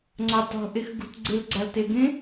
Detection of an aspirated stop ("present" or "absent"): absent